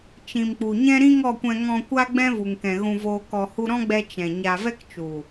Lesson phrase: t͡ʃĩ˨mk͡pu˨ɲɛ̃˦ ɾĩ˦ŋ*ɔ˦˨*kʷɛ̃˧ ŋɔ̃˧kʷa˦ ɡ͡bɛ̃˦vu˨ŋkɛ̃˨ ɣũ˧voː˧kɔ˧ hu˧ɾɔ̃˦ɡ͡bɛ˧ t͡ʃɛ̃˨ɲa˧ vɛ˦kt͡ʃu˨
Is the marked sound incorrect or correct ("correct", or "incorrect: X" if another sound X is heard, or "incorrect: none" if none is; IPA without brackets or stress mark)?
correct